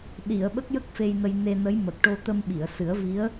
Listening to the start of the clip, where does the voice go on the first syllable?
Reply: low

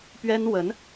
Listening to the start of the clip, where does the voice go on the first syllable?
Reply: high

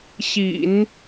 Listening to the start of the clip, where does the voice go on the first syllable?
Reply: low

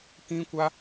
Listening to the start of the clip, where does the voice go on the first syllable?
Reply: high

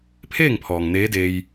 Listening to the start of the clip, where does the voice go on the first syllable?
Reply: falling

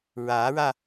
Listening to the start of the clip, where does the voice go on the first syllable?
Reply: rising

